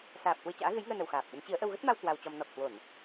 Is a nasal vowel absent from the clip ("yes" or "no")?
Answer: yes